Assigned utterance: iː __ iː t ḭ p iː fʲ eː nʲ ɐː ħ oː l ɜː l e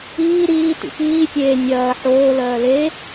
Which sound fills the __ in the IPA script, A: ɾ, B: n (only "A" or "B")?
A